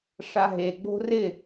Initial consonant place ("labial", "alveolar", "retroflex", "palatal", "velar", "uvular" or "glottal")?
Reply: retroflex